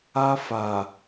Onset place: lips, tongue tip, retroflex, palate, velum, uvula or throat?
lips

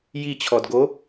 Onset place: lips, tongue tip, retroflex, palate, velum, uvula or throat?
palate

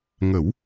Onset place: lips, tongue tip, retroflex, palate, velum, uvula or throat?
velum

